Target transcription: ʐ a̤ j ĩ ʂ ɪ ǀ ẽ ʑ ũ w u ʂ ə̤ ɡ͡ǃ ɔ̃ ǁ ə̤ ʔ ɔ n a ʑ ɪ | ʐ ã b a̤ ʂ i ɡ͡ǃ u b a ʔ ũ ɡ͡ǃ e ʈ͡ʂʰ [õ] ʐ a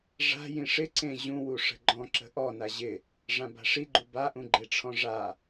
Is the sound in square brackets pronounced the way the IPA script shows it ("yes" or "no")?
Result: no